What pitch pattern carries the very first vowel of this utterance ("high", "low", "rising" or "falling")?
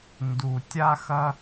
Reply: low